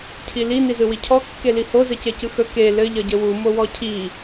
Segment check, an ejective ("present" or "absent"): absent